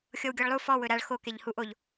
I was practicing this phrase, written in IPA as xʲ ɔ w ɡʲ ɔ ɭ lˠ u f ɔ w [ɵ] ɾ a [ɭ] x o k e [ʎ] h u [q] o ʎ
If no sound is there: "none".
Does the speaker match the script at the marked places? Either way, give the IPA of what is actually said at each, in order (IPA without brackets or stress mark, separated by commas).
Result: ɵ, ɭ, ʎ, ʔ